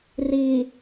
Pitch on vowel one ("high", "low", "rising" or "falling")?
low